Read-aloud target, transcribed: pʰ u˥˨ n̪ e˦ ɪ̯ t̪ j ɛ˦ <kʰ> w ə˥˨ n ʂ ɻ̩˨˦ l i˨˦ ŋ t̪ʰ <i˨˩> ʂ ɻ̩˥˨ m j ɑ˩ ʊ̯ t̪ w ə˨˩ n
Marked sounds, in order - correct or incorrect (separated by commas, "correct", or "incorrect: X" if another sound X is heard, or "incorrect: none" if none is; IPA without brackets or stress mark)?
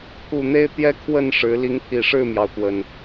correct, correct